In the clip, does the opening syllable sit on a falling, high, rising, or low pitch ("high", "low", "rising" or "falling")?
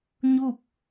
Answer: falling